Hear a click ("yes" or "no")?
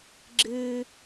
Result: yes